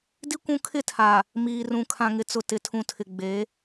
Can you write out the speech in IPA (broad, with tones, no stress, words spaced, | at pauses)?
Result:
di˦ kʷũ˦ kʰɪ˦˨tʰaː˨ | miː˨rũ˨ kʰã˨ŋɪ˨t͡sʊ˨ tɪ˨tʰũ˨ tʰɪ˨ ɡ͡beː˨˦